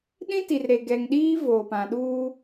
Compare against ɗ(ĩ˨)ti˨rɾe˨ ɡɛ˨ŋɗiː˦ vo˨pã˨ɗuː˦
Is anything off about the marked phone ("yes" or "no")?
yes